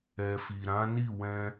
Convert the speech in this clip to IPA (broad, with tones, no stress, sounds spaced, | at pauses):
ɛ˨ f i˨ ɾ ã˨˦ n i˦˨ w ɛ̃˧